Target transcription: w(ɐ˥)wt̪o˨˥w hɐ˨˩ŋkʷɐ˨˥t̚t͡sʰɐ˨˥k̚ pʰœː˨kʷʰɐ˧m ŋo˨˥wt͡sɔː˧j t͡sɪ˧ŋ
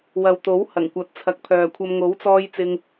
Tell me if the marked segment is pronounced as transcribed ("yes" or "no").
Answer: no